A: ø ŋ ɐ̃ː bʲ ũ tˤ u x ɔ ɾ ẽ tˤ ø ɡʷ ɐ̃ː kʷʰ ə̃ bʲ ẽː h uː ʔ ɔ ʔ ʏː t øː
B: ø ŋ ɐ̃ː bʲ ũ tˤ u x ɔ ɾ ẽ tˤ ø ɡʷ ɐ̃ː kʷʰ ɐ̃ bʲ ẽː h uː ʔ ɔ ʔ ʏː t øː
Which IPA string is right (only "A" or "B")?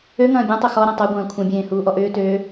B